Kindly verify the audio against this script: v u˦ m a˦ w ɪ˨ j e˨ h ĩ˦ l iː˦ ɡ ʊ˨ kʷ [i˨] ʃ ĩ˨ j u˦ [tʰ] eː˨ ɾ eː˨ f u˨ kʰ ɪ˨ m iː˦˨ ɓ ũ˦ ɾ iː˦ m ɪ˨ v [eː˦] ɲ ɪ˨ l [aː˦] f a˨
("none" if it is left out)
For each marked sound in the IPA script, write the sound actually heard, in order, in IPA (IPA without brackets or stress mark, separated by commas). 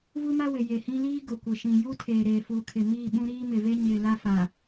ɪ˨, tʰ, e˦, a˦